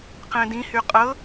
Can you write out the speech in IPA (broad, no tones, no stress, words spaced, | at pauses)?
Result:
qɛ̃dĩ hyqʼɤ